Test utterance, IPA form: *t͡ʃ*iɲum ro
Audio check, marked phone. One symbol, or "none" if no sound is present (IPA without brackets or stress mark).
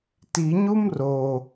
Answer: t